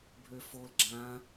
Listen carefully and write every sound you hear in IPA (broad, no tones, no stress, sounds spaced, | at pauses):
bʱ ø f o l ɡ͡ǁ ã